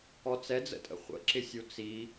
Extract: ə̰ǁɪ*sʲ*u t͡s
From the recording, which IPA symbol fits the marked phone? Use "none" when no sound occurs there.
sʲ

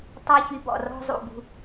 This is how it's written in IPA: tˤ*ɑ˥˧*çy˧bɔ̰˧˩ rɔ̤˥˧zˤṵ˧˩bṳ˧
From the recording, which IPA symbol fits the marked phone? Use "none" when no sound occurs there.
ɑ˥˧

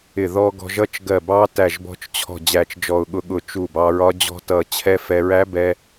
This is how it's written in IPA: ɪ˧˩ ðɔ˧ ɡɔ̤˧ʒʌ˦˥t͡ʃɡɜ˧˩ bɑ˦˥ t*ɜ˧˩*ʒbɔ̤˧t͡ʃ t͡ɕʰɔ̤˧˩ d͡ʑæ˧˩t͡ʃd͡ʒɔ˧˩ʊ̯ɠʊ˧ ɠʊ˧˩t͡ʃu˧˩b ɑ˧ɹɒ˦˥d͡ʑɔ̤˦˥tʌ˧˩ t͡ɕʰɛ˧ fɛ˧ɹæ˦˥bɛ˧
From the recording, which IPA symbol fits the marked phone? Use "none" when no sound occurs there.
æ˧˩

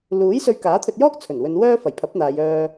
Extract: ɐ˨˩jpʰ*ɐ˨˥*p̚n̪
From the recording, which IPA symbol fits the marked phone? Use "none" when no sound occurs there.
ɐ˨˥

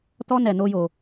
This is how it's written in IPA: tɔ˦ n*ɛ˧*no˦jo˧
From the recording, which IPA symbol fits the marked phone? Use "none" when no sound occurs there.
ɛ˧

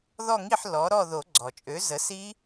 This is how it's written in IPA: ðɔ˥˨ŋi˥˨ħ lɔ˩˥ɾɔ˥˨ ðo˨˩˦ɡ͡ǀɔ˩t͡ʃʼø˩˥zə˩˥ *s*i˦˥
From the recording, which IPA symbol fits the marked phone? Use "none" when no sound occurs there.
s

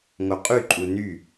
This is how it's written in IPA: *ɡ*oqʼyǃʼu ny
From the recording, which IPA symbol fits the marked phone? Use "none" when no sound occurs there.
ŋ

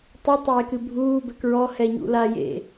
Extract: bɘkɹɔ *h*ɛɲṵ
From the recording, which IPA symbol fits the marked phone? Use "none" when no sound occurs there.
h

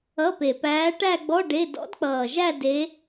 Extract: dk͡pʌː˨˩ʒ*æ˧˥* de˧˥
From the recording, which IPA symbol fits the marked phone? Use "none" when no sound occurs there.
æ˥˧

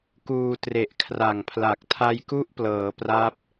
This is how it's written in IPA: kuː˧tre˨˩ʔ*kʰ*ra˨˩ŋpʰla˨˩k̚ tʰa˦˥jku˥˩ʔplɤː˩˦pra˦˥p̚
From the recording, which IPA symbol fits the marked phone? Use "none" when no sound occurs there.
kʰ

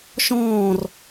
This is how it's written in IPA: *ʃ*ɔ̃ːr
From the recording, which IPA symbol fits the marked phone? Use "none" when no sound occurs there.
ʃ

